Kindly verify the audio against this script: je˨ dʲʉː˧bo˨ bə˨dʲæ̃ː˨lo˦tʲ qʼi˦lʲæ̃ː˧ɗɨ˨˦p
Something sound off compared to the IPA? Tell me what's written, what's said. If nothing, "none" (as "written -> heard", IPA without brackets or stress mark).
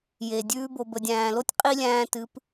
ɗ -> t